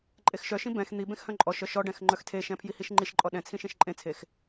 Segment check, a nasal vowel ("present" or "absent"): present